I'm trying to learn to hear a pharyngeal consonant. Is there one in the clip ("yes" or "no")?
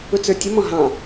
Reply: no